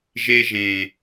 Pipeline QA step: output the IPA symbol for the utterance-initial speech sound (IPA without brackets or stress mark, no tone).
ʒ